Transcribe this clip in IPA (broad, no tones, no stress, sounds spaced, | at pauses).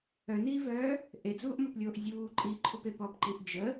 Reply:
œ n iː v œː | ʔ e d͡z uː ʔ m ɔ p lʲ oː ʔ zʲ uː ǃʼ i ǃʰ u p e p ɔ p ǃ i ʔ d͡ʒ ə